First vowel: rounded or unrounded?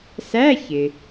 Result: unrounded